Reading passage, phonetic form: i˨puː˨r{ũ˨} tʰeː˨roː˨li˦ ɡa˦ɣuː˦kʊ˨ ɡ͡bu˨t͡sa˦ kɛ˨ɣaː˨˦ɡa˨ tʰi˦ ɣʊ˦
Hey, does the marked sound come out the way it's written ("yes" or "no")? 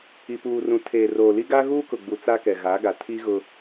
yes